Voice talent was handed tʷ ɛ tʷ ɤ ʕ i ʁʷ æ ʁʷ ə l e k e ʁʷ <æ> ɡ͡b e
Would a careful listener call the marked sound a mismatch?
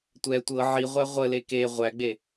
no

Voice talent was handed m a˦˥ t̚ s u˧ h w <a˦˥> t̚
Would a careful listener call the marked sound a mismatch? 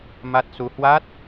no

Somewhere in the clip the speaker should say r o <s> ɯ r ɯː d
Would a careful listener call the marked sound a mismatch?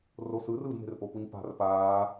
no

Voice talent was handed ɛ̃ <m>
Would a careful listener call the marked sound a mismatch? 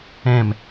no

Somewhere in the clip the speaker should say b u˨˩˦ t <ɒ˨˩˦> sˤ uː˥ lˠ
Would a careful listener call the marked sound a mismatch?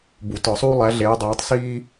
no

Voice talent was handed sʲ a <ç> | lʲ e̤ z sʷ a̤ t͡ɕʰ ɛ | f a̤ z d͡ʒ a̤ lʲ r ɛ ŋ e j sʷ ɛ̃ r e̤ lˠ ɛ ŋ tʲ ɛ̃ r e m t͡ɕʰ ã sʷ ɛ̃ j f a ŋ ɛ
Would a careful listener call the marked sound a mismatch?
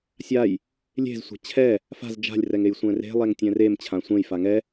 yes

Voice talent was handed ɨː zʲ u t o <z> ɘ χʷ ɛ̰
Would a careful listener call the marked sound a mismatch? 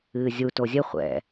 yes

